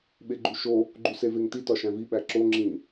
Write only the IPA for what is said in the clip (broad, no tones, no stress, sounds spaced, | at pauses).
ɓ e ɡ͡ǃ u ʃ o | ɡ͡ǃ u s e v e ŋ t i t ɒ ʃ æ̃ v i ɓ æ ǁ o ŋ͡ǁ ĩ